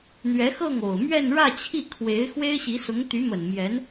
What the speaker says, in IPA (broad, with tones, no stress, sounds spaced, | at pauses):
n̪ ɥ ɛ˧˥ x ɤ˥˩ ŋ o˨˩ ʊ̯ m ɥ ɛ˥˧ n ɻ ä˥˧ t͡ɕʰ i˥˩ kʰ w e˧˥ ɪ̯ x w e˥ ɪ̯ ɕ i˧˥ s ʊ˧˥ ŋ t̪ y˧˥ m ə˨˩ n m j ɛ˧˥ n